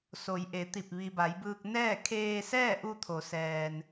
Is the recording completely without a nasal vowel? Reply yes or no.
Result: yes